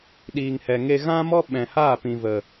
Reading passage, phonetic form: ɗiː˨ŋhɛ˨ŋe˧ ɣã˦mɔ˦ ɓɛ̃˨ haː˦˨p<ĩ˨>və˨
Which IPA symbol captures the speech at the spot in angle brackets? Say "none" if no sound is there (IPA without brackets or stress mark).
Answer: ĩ˨